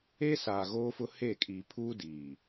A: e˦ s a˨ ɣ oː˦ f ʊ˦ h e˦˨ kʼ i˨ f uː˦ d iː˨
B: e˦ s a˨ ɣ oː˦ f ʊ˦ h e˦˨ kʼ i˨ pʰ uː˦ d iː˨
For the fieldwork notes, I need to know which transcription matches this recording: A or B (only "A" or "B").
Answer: B